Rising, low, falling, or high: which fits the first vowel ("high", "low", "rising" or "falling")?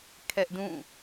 high